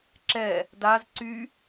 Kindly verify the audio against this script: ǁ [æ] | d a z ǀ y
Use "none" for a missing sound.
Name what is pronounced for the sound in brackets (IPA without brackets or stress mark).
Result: ɛ